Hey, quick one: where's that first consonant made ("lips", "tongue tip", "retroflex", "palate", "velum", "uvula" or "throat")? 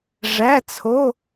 retroflex